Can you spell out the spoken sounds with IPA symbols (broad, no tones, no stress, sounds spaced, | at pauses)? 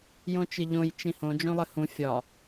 j õ t͡ʃ ɨ ʎ õ j t͡ʃ ĩ h õ d͡ʒ õ lˠ ɘ h ũ fʲ ɒ